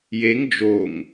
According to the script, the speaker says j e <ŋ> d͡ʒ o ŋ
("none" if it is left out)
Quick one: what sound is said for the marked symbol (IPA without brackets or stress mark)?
ŋ